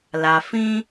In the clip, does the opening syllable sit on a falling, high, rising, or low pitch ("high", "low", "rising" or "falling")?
low